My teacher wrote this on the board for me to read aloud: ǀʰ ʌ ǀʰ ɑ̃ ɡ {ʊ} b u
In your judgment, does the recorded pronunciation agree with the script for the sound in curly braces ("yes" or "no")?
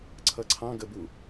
no